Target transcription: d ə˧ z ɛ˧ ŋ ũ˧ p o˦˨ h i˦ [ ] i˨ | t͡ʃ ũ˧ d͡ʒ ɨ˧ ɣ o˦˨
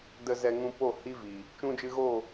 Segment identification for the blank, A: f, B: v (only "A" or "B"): B